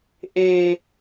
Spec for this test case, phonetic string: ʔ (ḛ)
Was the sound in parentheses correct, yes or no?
no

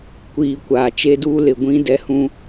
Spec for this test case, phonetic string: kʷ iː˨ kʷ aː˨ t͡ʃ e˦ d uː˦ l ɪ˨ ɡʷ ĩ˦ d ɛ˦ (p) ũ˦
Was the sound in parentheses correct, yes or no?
no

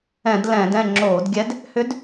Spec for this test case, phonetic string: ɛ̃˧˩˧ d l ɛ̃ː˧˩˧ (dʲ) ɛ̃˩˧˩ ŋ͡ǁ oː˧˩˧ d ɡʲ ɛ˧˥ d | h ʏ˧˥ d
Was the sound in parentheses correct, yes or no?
no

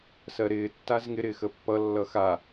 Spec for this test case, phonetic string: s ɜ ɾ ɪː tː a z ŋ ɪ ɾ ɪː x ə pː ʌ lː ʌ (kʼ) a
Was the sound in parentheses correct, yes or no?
no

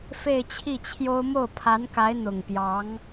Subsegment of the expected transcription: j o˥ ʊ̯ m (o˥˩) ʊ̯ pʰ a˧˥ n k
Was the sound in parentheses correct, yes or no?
yes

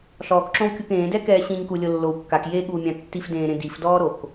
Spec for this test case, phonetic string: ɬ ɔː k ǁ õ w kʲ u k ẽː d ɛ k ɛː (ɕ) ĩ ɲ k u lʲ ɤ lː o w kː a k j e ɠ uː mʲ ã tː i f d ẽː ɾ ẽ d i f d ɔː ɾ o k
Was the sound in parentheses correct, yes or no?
yes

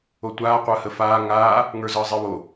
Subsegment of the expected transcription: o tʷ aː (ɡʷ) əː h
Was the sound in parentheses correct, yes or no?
no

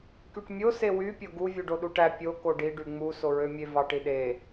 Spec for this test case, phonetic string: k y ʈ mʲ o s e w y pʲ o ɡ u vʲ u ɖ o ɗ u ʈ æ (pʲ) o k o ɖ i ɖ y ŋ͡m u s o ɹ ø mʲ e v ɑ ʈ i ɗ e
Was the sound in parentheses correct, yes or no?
yes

